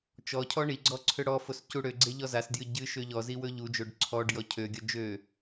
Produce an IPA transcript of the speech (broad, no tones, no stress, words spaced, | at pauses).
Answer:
t͡ʃɔcʰɔ ɳiɡ͡ǀɔ ǀʰøɽɔfos cuɽøɡ͡ǀe ʎɔzasdjɨ ɟɨ ʃøʎɔzi wɵʎud͡ʒoɖ ǀʰɔɖ jɔcʰøɡʲɔ d͡ʒø